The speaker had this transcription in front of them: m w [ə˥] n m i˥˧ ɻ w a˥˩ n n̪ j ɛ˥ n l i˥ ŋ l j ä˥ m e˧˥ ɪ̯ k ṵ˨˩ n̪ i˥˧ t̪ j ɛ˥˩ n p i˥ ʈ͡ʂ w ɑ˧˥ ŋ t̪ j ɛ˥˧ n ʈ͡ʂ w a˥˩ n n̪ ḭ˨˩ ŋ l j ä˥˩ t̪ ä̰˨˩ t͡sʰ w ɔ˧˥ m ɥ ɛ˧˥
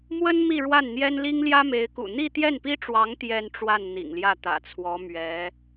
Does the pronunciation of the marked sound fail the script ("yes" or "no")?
no